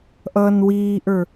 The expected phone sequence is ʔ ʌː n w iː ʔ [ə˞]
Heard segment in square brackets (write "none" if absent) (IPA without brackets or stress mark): ə˞